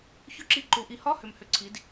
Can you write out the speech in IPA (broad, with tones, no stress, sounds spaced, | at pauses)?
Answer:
ç ʏ˧˥˧ ǁ i˧ ǃ u˩˧ ʔ i˩˥ h ɒ˧˥˧ h ʏ˨˩ m h ʏ˨˩ ǀʰ i˩˧ d